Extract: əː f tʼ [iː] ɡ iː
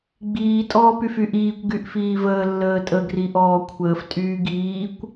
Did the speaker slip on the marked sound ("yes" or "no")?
yes